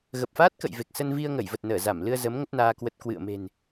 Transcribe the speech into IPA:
ɣə˨˩p̚faː˦˥t̚kə̰˧˨j ve˨˩k̚sə˧nvi˧ə̯ ŋə˧˩jvə˨˩t̚ nəː˧˩za˧˩mlɨ˧ə̯ zə˨˦m ŋə˦˥t̚naː˧ kwə˨˩t̚ kwɨ̰˧˨ə̯me̤˨˩n

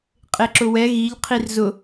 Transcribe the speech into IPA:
qʼeǁʊwɛ ɣiʎ qʰirzʊ

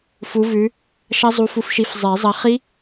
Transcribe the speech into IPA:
fu˨˥vʉ˨˥ | ʃɐ˦˥zˤu˨˥fu˨˥fʃi˨˥f zˤe˨˩˦zˤɐ˨˥ χi˦˥

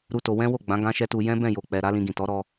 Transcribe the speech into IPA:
ɾu˦to˧ wɛ̃˦wo˦˨ɡ͡bã˨˦ ɡã˦ʃɛ˦tu˧ jɛ̃˦bɛ̃˦˨jo˨k͡pɛ˨ ɾa˨˦lĩ˧ɡĩ˨tɔ˨˦ ɾɔ˧

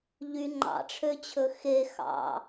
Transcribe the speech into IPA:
ʎy ŋ͡ǃɑ̰ʈ͡ʂʰøt͡ɕʰɵ xe xɑ̰

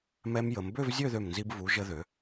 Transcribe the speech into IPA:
mɛ˧mjə˩˧mbø˥˧v zʲø˥˧ðø˧˩mnzi˧b vu˩˧ ʒə˧ðø˩˧

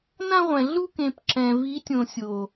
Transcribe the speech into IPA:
nã˦ʁʷɛ̃˨ɮu˦kẽ˨p ǁɛ̃˨ vi˨˦tʲõ˨sʲo˨

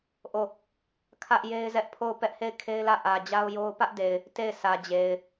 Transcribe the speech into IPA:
ʔo˦˨ | kʰä˦ʔ je˦ɪ̯zɛ˦ʔpʰo˦˨ʊ̯ pɛ˦ʔhe˦˨ɪ̯kʰe˦ɪ̯lä˦˨ ʔä˨d͡ʑa˦ʊ̯jo˦ʊ̯ pä˦ʔde˨ɪ̯ | te˦˨ɪ̯sä˨d͡ʑe˨ɪ̯

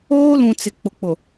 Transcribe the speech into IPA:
oː˦lũ˨ t͡sɪ˨ k͡pʊ˨k͡pʊ˨

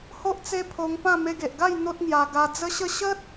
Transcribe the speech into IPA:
ho˦ʔt͡se˦pʰo˧ŋpã˥˧ me˧ɡe˨ʔɡa˥˧j n̪o˦t̚ŋja˧ ɡa˧d͡zə˦ɕə˥˧ ɕə˦t̚

